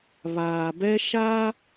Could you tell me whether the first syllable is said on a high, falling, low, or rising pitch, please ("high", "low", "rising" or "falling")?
low